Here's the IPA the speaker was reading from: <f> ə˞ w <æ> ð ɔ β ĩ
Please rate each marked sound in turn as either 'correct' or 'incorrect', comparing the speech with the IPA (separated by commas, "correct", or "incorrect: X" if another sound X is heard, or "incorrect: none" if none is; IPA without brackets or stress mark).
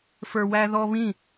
correct, correct